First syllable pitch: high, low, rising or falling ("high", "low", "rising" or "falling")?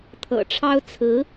low